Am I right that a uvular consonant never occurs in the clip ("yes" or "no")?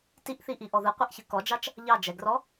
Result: no